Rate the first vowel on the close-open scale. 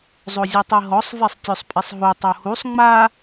mid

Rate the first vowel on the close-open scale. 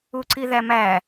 close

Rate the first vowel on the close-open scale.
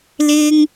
close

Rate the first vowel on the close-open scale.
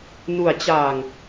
close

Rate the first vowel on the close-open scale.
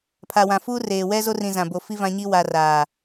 open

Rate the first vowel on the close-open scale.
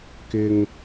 close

